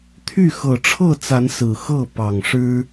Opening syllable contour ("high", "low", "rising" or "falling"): falling